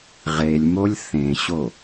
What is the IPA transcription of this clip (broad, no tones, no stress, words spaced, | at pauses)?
ʁelʲmolʲ θẽɕo